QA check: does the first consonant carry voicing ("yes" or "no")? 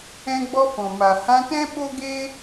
yes